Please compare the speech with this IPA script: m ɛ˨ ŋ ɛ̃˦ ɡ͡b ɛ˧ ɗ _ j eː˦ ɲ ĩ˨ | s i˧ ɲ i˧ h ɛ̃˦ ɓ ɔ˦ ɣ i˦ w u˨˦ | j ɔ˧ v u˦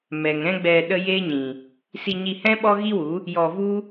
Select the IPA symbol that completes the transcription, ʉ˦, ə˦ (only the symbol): ə˦